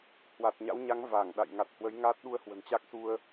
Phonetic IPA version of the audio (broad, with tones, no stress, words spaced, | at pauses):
hwa˨˩t̚ɲa̰˧˥wɲa˨˦ŋ va˧˩ŋɗa̰˧˨j ŋa˨˩t̚hwə˨˦jŋaː˦˥t̚ ɗu˧ə̯hwə̤˨˩nt͡ɕa˦˥k̚su˧ə̯